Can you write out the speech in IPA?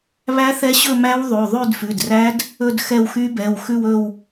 β æ˦˥ θ ɛ˦˥ ɕ ɵ˥˧ m æ˦˥ w ðˤ ʉ˩˧˩ ðˤ ʉ˥˧ d f ʉ˩˧˩ d r æ˦˥ d | ɵ˥˧ d x ɛ˥˧ w x y˦˥ b ɛ˩˧˩ w x ʉ˥˧ w ɵ˥˧ w

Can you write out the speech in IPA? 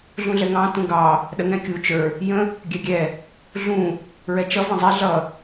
ɮ ũ ɮ ɛ ŋ ɑ̃ t ũ ɡ ɑ | ɗ ə ŋ ɛ̃ kʲ u t͡ʃ ə˞ | j ə̃ | ɡʲ ɛ ɡʲ ɛ | ɮ ũ | ɹ ɛ t͡ʃ ʌ v ə̃ zˤ ɛ ɮ ʌ

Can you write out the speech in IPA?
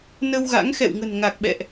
n ə˧ w ɣ a̰˧˥ ŋ x ɛ̰˧˨ w ŋ ə̤˨˩ n ŋ a˨˩ k̚ ɓ ɛ̰˧˨ ʔ

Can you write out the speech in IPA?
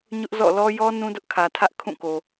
ɲ ʊ˦ ʔ z ɔ̰˦˨ l ɔ˦ j ɔ˦ n ũ˦ d ʊ˦ ʔ kʰ ä˨ tʰ ä˦ ʔ kʰ ũ˦˨ k o˨

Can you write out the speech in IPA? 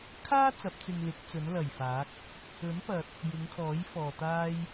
kʰ aː˥ t͡s ɐ˨˥ p̚ t͡s ɪ˧ ŋ l ɪ˨˥ k̚ t͡s ɵ˨˥ n l ɐ˨˩ j f aː˨˥ k̚ | ɵ˨˥ n p ɐ˨ t̚ | j ɪ˨˧ ŋ kʰ ɔː˨˥ j f ɔː˨ t̪ aː˥ j

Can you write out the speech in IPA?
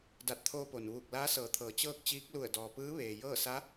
d a˧˩ t̚ t̪ʰ oː˧ p o˩ n ʋ uː˧˩ k̚ l aː˧˥ s ɤː˩˧ t̪ʰ ɤː˩˧ t͡ɕ ɤː˥˨ k̚ t͡ɕ iː˧˥ k̚ l u˧˩ ə̯ d ɔː˩ p ɯː˧˥ ʋ eː˩ j ɤː˥˨ s a˧˥

